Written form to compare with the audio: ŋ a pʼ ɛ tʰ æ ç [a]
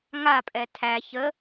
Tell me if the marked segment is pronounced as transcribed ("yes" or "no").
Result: no